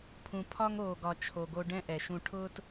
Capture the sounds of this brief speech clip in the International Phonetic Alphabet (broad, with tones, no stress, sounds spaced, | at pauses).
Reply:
pʰ ũ˨ pʰ ɒ˦ ŋ oː˨ ɡ ɒ˨ t͡ʃʰ o˨ ɡ o˧ ɖ ɛ̃˦ ʔ ɛ˨ ʃ ũ˧ ʈʰ ʊː˦ t